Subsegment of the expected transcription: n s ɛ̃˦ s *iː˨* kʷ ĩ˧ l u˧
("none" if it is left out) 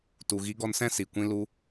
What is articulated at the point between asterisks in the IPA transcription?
i˨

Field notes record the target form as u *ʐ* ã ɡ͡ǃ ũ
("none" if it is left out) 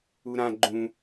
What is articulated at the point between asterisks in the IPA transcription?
ɾ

